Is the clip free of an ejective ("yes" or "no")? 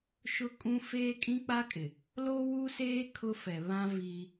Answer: no